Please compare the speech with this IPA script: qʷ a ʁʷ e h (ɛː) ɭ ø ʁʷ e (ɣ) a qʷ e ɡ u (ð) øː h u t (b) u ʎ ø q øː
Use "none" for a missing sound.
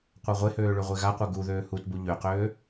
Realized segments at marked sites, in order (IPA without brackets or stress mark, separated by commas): øː, ɣ, ð, b